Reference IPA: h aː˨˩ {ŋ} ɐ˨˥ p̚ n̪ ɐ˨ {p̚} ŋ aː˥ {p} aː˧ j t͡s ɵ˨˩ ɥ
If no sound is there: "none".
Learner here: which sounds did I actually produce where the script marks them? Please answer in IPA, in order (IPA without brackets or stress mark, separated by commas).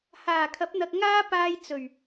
kʰ, k̚, p